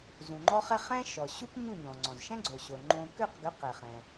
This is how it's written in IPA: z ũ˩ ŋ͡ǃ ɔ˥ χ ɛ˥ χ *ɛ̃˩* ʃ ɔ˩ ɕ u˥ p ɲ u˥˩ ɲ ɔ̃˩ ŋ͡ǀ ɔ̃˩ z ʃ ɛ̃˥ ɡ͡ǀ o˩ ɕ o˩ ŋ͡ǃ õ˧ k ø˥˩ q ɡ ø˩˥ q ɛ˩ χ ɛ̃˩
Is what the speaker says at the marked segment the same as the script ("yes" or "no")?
no